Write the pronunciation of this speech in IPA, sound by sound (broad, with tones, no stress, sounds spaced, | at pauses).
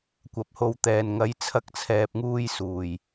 kʷ ɐ˨ p̚ h o˨ w t̪ ɛː˨ n ŋ ɐ˨˧ j t͡sʰ ɐ˧ k̚ t͡sʰ ɛː˨ p̚ ŋ uː˧ j s uː˨˩ j